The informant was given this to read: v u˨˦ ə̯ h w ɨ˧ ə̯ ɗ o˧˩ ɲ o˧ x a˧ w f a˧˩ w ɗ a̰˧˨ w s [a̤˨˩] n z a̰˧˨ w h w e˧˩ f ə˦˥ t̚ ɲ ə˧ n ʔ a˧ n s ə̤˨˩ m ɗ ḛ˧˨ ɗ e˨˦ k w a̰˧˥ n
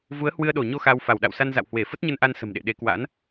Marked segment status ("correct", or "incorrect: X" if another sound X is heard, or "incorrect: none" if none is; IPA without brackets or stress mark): incorrect: a˧